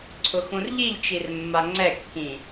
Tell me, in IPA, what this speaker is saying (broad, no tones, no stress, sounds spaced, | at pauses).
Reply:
ǀʰ ʊ x ũ r ʎ i ʎ t͡ʃ i r mː a ŋ͡ǀ ɛ kː ĩ